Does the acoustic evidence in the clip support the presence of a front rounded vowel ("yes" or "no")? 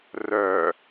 yes